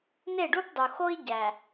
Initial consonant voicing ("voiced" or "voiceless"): voiced